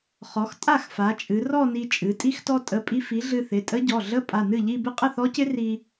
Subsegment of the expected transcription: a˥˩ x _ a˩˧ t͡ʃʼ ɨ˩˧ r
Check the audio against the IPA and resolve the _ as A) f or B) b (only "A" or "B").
A